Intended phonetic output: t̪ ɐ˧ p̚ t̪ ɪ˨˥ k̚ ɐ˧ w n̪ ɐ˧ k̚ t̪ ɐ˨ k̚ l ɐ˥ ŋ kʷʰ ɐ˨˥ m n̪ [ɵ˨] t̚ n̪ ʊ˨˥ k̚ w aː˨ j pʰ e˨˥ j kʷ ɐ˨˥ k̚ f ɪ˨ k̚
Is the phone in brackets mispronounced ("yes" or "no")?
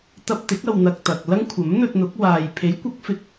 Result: yes